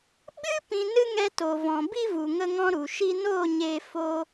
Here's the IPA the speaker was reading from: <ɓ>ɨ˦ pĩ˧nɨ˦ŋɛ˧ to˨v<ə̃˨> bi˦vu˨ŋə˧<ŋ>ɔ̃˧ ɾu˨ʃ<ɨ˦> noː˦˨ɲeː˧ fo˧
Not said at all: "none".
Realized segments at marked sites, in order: ɓ, ɔ̃˨, ŋ, i˦

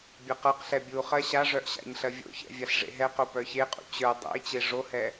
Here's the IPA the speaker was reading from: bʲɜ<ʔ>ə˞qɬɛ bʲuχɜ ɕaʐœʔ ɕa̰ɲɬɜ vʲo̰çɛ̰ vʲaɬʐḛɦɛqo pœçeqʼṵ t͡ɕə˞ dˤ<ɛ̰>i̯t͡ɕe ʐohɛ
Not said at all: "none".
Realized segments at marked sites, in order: q, ɛ̰

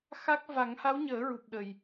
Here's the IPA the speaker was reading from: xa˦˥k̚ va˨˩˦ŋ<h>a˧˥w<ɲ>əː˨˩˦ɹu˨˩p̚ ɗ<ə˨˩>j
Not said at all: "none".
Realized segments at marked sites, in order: h, ɲ, ə˨˩

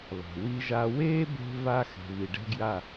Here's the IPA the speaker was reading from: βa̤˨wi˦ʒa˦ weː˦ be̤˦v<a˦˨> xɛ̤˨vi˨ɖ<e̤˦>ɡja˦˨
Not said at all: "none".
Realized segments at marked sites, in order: a˦, ɛ̤˦

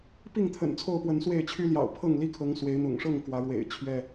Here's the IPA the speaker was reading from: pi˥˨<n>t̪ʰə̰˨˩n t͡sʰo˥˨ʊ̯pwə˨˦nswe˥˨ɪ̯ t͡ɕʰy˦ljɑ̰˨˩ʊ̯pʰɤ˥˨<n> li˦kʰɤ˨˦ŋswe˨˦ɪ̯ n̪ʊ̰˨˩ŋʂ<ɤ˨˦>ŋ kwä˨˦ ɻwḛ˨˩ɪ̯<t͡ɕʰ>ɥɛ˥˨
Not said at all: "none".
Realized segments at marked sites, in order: ŋ, ŋ, ɤ˥˨, t͡ɕʰ

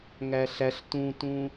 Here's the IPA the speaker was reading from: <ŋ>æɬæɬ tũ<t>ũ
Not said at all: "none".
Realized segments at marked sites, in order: ŋ, t

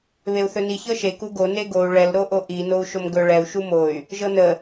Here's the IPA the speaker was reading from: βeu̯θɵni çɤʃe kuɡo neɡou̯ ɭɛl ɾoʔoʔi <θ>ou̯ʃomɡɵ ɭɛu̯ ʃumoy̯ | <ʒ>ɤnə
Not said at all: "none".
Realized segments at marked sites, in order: n, ʒ

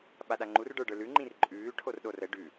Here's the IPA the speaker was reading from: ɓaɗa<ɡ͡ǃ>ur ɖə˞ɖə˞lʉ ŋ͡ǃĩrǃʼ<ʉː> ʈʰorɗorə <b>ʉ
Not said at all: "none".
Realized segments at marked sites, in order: ŋ͡ǃ, ʉː, ɖ

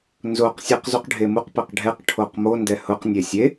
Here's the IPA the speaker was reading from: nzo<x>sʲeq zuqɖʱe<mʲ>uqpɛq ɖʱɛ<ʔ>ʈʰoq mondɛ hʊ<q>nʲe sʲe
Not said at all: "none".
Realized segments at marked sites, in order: q, m, q, q

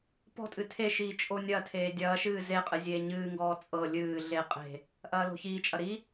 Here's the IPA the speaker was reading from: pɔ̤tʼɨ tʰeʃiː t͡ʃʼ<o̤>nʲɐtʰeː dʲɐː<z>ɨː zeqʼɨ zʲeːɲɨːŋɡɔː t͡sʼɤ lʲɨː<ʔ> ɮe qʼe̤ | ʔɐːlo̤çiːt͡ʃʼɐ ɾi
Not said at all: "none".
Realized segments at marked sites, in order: o, ʃ, none

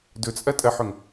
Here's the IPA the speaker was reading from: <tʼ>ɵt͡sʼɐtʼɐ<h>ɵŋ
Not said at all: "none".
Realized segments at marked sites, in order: d, ħ

